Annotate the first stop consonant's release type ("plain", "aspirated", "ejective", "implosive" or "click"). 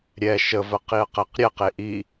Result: plain